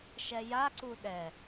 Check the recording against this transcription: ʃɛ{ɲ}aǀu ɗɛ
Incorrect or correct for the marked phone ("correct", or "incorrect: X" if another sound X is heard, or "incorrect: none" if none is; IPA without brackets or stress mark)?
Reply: incorrect: j